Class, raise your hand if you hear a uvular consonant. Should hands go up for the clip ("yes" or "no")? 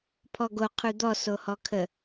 yes